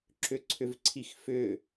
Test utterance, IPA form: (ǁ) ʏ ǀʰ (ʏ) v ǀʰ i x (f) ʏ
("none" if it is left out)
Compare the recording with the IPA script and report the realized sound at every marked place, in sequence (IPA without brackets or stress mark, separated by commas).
ǁ, ʏ, f